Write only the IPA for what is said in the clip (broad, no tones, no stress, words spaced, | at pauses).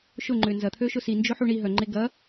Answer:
ʃʊŋ͡ǃʏ nzɐt̪ʰøʃʊ sind͡ʒʊħu ɳi ɦœŋ͡ǃe ɡɐ